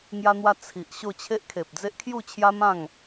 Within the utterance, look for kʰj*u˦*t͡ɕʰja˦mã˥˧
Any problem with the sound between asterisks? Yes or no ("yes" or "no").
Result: yes